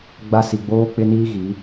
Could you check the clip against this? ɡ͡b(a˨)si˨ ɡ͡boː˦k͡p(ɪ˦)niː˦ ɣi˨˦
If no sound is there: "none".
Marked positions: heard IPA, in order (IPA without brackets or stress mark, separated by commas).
a˦, ɪ˦